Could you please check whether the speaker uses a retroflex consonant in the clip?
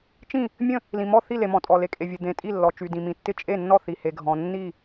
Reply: no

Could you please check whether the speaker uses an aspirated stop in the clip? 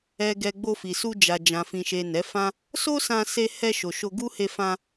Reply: no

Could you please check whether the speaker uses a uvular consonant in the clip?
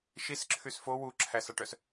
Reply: no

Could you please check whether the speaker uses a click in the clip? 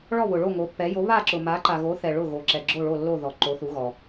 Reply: yes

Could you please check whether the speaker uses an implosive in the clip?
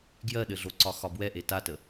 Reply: yes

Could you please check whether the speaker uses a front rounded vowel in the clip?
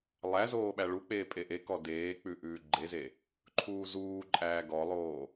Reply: no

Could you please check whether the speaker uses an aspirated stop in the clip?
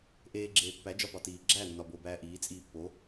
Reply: no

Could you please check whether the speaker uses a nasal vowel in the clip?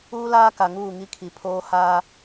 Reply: no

